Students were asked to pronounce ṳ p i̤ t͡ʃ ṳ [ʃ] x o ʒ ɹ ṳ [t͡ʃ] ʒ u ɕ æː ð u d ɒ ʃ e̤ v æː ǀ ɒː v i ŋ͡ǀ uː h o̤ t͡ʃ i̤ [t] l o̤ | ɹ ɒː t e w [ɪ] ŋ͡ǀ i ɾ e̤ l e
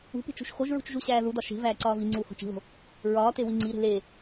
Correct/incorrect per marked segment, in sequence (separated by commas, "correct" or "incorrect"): correct, correct, incorrect, incorrect